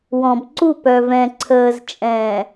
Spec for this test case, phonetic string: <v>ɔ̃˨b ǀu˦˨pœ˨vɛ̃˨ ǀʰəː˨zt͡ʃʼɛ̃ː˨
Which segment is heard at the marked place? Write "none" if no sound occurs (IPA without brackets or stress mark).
w